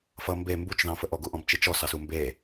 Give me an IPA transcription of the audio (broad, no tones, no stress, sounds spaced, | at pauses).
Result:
f ʌ m b e m b u t͡ʃ ð ɑ̃ f ə ʔ ɔ ɡ u ʔ ɔ̃ b t͡ʃ i t͡ʃ ɔ s ɑ s u m b e